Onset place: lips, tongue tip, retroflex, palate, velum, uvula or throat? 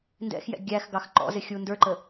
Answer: tongue tip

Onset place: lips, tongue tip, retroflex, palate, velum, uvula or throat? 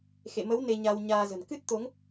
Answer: velum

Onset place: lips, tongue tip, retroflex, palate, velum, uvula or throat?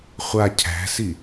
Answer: uvula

